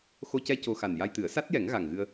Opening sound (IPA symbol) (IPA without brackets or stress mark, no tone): x